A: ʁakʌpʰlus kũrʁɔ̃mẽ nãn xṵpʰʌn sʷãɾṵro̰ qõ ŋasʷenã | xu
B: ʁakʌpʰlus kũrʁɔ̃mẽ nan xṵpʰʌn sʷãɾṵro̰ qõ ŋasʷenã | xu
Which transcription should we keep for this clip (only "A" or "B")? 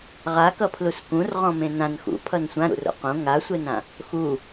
A